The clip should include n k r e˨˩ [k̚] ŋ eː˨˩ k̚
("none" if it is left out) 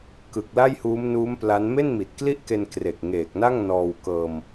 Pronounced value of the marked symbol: k̚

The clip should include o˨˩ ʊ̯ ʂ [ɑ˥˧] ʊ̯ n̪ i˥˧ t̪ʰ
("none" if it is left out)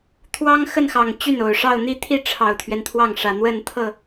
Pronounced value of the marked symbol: ɑ˥˧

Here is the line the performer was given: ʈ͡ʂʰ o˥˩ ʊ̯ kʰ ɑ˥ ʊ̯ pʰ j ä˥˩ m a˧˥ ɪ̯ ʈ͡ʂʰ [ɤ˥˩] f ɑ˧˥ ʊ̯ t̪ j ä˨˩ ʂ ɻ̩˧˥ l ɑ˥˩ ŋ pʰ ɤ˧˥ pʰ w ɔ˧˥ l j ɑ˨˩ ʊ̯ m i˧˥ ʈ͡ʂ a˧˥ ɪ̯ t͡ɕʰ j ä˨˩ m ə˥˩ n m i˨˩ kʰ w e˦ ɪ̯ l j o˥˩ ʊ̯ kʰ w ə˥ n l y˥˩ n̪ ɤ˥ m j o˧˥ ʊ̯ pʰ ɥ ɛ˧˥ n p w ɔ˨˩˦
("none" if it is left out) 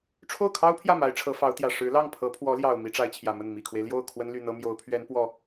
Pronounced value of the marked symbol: ɤ˧˥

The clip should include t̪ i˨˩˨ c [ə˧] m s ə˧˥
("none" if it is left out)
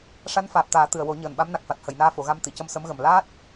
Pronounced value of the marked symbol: ə˧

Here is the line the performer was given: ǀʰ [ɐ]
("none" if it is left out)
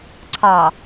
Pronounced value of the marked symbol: ɑ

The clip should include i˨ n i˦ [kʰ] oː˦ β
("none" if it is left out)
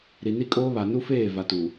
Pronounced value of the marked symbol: kʼ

